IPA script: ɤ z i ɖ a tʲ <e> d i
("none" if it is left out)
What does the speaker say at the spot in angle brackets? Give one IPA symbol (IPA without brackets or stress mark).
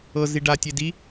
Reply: e